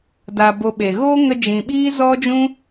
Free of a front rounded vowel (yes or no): yes